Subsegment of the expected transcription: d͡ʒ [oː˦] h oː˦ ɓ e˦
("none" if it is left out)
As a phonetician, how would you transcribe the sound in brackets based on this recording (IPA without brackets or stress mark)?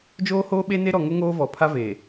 oː˦